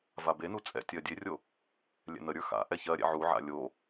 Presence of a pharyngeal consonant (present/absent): present